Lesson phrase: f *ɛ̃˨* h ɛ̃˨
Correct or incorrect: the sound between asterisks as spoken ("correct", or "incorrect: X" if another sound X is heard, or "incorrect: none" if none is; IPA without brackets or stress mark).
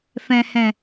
correct